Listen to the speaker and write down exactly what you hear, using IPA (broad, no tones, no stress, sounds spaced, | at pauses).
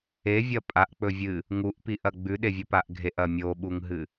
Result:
e vʲ ɐ pʼ a ʔ k͡p ɵ vʲ ɨ | ŋ u ʔ p i ʔ ɐ ɡ͡b ʉ ɗ e vʲ ɵ p a ʔ ɡʱ e ʔ ɐ mʲ o ɓ u ŋ ɦ ɨ